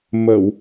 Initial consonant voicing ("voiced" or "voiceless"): voiced